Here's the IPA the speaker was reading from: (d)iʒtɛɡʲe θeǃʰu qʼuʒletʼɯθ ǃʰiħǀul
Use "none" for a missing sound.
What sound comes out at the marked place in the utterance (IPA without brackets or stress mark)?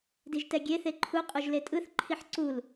d